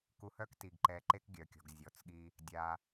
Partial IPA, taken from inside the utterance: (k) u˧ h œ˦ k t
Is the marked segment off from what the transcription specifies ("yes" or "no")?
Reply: no